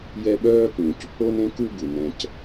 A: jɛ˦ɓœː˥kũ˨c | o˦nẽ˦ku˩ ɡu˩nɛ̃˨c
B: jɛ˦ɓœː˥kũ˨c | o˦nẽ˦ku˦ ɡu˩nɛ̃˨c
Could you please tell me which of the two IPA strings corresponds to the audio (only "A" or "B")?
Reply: B